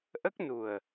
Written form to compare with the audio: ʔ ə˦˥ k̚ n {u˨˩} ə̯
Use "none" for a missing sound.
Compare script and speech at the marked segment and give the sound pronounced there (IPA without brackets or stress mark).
u˨˩